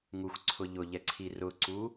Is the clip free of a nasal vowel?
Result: yes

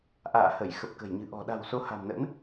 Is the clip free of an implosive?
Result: no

